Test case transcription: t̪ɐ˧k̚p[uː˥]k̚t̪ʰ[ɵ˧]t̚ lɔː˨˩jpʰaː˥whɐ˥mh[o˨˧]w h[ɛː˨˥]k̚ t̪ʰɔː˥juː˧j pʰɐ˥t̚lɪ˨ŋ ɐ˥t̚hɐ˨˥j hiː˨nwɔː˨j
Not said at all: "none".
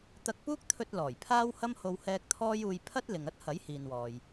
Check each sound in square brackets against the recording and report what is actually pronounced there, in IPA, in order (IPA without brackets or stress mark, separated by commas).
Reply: uː˥, ɵ˧, o˧, ɛː˧